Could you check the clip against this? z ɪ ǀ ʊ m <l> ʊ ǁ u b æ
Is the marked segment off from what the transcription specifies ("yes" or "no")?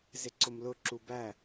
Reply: no